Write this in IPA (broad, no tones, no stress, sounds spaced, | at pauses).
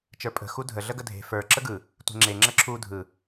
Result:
t͡ʃ ə˞ pʼ ə̤ x u dʱ ə ɮ ə ɡ ə dʱ e̤ f ə˞ ǁ ə ɡ ɯ | tʷ e̤ ŋ͡ǁ e ŋ͡ǁ ə ǁʰ u dʱ ɯ